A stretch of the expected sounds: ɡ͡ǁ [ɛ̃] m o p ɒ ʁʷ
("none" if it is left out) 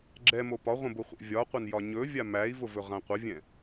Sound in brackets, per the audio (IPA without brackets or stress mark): ɛ